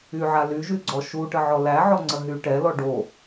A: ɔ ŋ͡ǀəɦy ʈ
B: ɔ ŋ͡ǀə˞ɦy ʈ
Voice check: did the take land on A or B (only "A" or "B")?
A